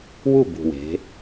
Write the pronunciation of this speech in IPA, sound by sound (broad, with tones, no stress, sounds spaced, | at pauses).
w u˥˨ b ṳ˨˩ w e̤˩˧